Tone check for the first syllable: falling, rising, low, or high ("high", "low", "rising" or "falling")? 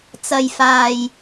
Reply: low